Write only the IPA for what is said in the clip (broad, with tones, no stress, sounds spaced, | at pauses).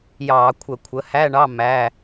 j ɑː˧˩˧ kʷʰ ə˧˩˧ kʷʰ ə˩˥ h æ˧˥˧ ɳ ɑ˧˥˧ m æ˧˥˧